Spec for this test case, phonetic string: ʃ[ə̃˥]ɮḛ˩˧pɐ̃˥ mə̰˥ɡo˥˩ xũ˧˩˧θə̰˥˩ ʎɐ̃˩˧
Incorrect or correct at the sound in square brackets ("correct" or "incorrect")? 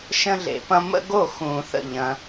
correct